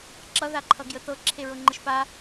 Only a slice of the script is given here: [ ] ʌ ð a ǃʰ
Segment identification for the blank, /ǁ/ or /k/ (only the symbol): ǁ